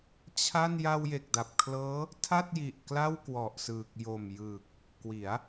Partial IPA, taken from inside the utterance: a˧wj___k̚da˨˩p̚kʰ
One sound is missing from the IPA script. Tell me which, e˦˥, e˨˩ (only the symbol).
e˨˩